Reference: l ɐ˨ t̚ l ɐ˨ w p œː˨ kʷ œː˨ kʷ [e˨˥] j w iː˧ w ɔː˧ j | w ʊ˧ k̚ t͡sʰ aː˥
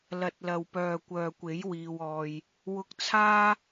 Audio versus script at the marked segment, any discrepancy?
no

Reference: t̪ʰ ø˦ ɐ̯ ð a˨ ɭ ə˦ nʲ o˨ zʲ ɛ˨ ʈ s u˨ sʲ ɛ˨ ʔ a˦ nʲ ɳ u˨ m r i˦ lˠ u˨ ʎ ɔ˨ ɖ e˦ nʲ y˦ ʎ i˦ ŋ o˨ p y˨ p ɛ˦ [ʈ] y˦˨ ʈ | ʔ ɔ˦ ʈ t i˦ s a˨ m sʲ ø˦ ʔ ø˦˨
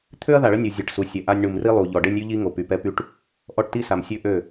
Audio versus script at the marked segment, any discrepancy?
yes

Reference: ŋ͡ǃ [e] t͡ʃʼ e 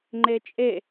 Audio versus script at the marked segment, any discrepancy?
no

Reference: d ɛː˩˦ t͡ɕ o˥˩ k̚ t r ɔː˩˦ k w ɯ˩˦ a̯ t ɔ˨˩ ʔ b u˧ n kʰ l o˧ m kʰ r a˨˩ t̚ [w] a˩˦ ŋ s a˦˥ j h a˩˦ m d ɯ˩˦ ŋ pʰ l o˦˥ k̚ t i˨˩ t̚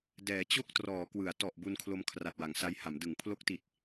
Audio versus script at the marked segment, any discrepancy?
no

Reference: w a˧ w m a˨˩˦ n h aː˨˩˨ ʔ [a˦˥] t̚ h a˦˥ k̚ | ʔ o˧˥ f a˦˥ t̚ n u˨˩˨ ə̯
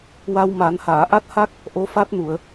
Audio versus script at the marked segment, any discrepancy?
no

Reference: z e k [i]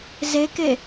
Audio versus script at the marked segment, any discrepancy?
yes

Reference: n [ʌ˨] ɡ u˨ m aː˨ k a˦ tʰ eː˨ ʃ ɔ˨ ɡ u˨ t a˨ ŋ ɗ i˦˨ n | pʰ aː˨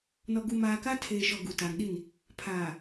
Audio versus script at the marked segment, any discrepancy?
yes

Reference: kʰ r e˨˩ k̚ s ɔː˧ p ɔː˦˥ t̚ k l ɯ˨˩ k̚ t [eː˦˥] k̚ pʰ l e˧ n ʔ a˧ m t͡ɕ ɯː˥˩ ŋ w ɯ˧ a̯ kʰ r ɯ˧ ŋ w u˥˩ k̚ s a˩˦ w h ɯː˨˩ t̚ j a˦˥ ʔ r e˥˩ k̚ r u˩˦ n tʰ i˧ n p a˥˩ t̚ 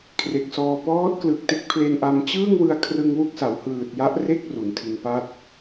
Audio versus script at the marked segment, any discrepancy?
yes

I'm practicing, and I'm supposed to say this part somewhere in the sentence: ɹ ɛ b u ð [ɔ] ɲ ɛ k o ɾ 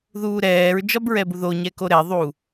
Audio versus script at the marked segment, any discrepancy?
yes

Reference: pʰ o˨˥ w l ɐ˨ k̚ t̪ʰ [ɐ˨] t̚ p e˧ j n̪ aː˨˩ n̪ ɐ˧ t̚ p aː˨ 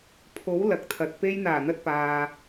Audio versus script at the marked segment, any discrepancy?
no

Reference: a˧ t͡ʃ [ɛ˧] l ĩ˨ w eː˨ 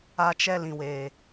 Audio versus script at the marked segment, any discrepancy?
no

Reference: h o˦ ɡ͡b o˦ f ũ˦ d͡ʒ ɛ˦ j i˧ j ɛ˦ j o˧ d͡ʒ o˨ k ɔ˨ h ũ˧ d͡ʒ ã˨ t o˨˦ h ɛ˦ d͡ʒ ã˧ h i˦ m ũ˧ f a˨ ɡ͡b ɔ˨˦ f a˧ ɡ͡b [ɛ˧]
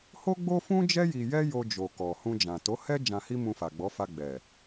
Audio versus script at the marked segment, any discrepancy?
yes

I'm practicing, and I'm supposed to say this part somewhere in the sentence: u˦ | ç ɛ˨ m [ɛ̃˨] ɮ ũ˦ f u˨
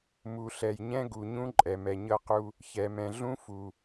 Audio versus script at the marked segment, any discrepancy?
no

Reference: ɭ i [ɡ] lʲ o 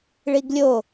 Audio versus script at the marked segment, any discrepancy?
no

